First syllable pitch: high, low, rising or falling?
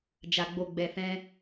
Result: low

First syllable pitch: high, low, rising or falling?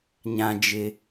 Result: low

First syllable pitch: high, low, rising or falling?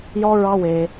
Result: high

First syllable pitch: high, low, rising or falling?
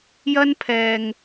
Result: high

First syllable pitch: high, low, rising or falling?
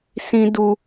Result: high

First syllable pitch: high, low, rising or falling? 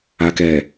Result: low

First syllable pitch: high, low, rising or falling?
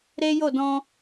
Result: high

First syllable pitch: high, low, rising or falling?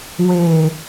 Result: low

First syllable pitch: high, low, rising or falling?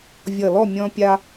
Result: low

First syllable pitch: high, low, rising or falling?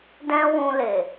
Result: high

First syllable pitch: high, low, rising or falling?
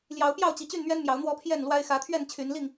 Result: rising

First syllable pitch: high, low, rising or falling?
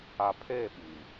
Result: low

